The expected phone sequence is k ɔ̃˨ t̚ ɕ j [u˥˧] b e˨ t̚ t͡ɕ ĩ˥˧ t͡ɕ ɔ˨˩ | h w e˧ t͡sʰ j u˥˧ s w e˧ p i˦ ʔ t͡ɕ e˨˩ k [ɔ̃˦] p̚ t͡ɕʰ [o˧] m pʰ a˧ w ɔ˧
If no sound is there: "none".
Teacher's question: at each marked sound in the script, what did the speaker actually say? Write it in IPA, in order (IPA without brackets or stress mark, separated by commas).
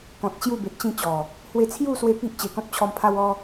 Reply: u˥˧, ɔ̃˦, ɔ˧